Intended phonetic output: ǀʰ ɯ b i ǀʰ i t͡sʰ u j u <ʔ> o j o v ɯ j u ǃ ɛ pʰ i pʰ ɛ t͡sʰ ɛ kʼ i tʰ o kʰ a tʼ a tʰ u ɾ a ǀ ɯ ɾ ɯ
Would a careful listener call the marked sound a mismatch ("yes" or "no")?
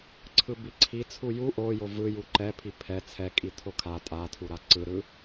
no